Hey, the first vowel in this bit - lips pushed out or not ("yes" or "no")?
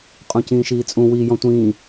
yes